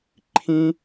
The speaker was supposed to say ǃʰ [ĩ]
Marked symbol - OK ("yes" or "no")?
yes